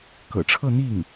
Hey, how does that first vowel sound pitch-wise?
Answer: low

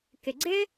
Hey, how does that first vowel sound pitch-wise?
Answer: low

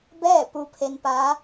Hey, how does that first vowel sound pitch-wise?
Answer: falling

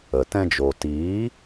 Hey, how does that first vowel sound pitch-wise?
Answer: low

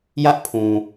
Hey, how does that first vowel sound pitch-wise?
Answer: high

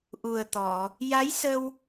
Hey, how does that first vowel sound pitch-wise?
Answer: low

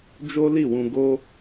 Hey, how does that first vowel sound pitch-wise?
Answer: high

